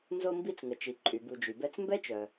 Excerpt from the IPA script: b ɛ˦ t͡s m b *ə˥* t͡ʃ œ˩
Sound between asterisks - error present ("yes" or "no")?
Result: yes